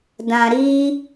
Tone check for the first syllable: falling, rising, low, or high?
low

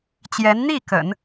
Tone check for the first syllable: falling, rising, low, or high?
rising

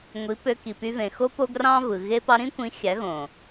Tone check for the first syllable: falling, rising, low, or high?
rising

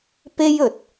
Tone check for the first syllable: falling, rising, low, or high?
high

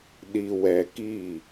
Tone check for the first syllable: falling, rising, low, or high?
low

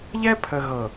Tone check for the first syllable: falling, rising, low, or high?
high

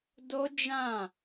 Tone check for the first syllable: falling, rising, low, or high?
high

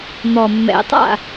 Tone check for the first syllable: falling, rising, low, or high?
low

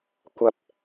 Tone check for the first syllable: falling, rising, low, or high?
high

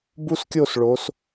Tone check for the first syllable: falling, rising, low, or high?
high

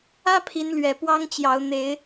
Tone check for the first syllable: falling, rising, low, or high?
high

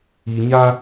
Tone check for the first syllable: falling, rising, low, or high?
low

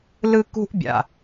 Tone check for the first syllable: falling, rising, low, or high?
high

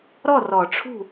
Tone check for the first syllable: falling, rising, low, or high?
falling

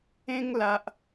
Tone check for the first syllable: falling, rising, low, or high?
high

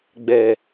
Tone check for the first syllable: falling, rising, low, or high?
low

